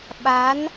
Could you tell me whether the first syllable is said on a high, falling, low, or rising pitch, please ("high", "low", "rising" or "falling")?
rising